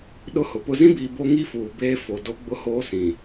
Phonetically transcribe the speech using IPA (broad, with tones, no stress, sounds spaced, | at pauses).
ɗ ʊ˦ h ʊ˨ p ʊ˦ z ĩ˦ b iː˨ b o˦ ŋ i˦ f uː˨ b eː˦ f o˨ d o˦ ɡ͡b ʊ˦ h oː˦ s ĩ˨